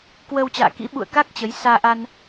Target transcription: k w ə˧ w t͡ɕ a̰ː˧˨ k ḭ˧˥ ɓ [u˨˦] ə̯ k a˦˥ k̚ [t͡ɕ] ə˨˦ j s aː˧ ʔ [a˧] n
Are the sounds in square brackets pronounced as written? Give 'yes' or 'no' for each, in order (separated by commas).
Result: no, yes, yes